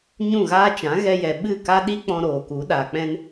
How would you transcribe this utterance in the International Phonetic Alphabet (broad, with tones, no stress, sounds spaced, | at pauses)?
ɲ ũ˦˨ ɣ aː˦ t͡ʃ ã˨˦ ɣ ɛ˧ j ɛ˨ ɓ ɨ˦˨ k a˦ ɗ i˦ k͡p ɔ̃˧ ɾ oː˨ k u˨˦ ɗ aː˨ k͡p ɛ̃˧ n